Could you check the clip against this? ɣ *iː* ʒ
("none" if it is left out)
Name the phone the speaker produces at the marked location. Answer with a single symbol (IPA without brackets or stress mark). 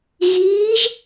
iː